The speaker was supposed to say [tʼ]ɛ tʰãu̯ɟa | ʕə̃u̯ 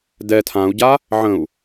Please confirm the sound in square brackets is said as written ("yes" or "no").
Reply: no